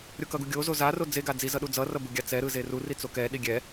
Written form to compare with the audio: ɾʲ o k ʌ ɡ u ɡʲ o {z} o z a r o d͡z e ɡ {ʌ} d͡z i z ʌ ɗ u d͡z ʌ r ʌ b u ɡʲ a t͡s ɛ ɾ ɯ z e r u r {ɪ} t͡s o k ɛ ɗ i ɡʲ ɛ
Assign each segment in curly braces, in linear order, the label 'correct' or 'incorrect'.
correct, incorrect, incorrect

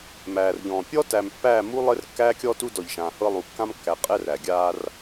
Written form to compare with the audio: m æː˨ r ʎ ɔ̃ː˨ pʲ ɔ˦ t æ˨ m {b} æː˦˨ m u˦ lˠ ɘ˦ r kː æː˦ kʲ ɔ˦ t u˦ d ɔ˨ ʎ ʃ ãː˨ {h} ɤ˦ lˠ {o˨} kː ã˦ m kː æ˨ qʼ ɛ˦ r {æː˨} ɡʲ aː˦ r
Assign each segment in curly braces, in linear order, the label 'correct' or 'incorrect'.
incorrect, correct, incorrect, incorrect

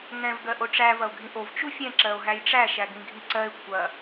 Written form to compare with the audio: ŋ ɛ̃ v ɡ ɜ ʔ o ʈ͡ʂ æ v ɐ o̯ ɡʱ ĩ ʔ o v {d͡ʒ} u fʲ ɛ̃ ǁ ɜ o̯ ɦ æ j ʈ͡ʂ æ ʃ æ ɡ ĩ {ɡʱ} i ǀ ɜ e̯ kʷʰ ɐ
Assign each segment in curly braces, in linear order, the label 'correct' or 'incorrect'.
incorrect, correct

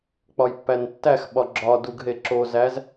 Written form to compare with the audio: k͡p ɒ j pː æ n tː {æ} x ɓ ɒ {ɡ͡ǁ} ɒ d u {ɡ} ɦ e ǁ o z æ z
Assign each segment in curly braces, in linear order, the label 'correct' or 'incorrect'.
correct, correct, correct

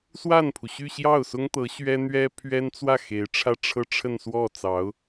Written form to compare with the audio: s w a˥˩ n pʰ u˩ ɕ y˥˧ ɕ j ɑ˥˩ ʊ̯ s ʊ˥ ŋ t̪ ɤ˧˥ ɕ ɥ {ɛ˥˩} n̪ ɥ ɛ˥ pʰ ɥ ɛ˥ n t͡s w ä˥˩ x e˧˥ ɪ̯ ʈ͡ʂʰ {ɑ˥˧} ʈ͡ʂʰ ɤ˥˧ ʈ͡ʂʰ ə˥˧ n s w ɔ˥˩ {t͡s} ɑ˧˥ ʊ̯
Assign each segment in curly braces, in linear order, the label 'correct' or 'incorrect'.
incorrect, incorrect, correct

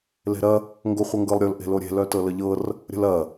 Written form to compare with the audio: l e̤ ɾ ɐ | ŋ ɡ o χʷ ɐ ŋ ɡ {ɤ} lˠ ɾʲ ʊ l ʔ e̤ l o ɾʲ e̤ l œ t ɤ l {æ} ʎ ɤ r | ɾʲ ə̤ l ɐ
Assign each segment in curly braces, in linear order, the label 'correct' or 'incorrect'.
correct, incorrect

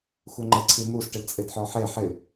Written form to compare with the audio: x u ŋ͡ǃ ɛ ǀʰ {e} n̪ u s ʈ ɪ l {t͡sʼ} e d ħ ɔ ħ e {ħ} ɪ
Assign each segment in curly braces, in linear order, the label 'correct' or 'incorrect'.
incorrect, correct, correct

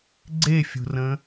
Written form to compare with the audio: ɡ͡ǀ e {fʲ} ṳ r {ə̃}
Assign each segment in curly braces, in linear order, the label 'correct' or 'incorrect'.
correct, correct

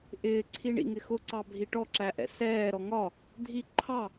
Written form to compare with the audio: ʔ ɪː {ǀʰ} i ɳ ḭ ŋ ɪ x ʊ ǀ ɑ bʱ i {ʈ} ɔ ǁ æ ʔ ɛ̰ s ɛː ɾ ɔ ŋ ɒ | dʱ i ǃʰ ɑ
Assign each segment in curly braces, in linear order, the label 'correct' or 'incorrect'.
correct, correct

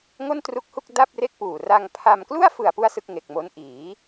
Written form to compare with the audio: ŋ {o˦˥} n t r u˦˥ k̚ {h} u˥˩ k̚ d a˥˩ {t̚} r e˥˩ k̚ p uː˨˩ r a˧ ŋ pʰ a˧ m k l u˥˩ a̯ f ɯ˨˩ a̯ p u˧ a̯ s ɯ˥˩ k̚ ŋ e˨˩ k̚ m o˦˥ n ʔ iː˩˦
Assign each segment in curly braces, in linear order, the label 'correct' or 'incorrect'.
incorrect, correct, incorrect

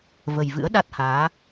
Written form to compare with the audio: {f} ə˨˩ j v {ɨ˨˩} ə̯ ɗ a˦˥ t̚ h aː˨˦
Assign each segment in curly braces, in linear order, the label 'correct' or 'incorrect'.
incorrect, incorrect

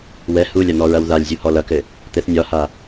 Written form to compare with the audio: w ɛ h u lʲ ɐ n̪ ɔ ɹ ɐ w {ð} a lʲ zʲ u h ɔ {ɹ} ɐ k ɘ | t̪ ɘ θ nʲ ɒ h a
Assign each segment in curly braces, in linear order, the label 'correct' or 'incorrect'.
correct, incorrect

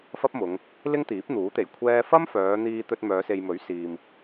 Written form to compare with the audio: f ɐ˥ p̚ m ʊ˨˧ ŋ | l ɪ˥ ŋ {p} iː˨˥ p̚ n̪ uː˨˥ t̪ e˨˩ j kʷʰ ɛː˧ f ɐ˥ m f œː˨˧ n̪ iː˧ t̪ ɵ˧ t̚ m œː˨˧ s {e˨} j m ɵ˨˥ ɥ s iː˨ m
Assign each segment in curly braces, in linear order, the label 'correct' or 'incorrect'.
incorrect, correct

